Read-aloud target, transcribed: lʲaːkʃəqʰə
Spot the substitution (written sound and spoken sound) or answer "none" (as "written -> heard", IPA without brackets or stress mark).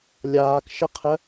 none